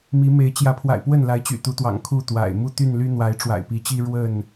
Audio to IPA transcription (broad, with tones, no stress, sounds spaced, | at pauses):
m i˨˦ m e˨˦ ɪ̯ t͡ɕ j ä˨˦ pʰ w a̰˨˩ ɪ̯ p w ə˥˨ n l a˨˦ ɪ̯ t͡ɕ y̰˨˩ t̪ u˨˦ t̪ w ɑ̰˨˩ ŋ kʰ u˥˨ t̪ w a̰˨˩ ɪ̯ m u˥˨ t̪ y˥˨ n l y˦ n̪ w a˨˦ ɪ̯ ʈ͡ʂ w a̰˨˩ ɪ̯ p i˨˦ t͡ɕ i˦ ɻ w ə˥˨ n